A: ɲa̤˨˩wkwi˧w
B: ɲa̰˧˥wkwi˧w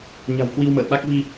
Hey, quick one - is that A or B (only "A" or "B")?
A